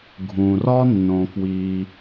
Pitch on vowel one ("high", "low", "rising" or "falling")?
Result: low